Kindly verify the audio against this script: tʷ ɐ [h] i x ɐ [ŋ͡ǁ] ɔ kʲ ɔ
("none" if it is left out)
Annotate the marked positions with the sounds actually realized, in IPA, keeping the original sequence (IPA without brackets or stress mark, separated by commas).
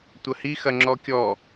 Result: h, ŋ͡ǁ